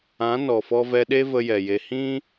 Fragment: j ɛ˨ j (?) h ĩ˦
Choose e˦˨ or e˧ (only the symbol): e˧